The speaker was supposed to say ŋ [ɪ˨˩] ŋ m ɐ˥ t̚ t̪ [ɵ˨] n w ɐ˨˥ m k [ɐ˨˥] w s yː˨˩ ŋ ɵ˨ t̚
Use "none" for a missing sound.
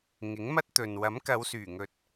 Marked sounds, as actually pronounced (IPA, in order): ɪ˨˥, ɵ˨, ɐ˨˧

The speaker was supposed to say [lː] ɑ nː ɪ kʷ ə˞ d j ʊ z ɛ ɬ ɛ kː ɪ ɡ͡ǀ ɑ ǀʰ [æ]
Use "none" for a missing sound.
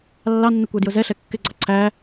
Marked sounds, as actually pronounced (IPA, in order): lː, æ

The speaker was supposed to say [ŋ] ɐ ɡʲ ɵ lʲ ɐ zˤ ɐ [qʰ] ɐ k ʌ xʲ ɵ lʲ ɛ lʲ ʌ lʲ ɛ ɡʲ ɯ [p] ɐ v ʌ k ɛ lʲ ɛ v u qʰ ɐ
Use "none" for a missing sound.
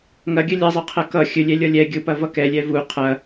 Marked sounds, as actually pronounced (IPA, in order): ŋ, qʰ, p

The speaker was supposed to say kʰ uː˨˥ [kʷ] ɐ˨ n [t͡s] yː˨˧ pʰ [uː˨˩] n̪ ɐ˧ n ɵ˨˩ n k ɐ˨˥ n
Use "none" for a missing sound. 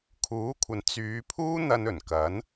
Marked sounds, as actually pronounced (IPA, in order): kʷʰ, t͡s, uː˥

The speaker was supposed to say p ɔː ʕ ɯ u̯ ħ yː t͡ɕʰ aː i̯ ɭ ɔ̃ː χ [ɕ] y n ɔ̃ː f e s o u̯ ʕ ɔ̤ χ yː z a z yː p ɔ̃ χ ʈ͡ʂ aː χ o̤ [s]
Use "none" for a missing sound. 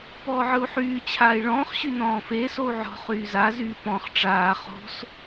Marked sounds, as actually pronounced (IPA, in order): ɕ, s

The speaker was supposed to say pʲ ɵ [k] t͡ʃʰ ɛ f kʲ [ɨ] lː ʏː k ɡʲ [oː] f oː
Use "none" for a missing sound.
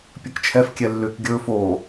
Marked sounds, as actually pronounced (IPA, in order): k, ɛ, ɵː

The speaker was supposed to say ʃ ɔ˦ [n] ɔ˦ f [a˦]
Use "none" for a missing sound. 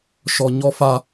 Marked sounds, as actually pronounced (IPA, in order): ɲ, a˦

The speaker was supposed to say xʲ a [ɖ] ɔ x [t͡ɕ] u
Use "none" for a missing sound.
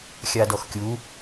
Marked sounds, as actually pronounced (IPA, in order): d, kʲ

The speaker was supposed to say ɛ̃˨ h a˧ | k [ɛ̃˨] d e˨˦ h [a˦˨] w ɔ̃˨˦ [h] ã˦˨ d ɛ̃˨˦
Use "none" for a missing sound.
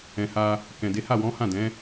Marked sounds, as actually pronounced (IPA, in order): ɛ̃˨, a˦˨, h

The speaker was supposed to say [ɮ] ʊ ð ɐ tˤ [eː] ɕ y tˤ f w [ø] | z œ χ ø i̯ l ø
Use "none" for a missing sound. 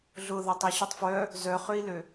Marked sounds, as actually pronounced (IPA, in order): ɮ, e, œ

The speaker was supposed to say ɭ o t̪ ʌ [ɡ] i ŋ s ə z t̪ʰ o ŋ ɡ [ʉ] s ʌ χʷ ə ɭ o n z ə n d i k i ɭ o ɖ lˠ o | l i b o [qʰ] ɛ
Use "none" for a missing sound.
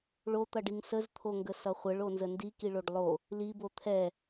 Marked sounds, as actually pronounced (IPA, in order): ɖ, ə, t̪ʰ

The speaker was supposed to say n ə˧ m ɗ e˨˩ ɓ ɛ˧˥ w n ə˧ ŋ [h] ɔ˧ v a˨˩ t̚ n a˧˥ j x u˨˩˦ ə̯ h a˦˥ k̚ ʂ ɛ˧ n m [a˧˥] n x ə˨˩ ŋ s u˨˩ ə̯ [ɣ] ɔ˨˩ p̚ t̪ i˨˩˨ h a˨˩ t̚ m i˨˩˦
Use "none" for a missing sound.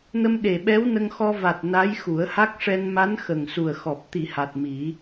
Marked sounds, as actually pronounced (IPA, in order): x, a˧˥, x

